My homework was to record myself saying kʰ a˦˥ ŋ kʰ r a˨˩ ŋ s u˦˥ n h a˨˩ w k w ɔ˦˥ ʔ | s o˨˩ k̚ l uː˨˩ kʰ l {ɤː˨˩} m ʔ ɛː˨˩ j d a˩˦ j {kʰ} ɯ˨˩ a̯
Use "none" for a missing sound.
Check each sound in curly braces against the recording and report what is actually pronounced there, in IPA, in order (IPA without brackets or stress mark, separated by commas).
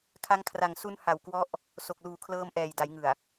ɤː˧, ŋ